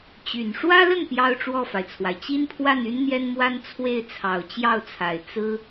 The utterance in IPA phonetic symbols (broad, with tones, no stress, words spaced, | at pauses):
t͡ɕy˨˩n ʂwä˥lə˥˩n pjɑ˥ʊ̯ʈ͡ʂwɔ˥˩fa˩ɪ̯t͡sʰwa˩ɪ̯ t͡ɕi˥npʰwa˥˩ny˥n n̪jɛ˥nmwa˥n t͡sʰwe˥˩ɪ̯ t͡sʰɑ˨˩ʊ̯t͡ɕjɑ˥˩ʊ̯t͡sʰa˨˩ɪ̯ t͡sɹ̩˥